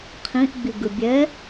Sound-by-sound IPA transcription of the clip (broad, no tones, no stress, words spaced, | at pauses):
qʰĩʔɡ͡biɡɯ bʲɛ